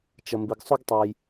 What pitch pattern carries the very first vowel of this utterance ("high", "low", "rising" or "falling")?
low